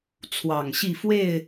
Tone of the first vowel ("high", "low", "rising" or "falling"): low